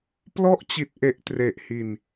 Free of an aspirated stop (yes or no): yes